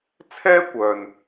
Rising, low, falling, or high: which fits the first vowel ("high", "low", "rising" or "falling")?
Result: high